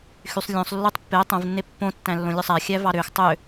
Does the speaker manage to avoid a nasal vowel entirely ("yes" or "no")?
no